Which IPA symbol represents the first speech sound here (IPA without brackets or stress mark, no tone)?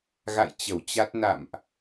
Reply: ɣ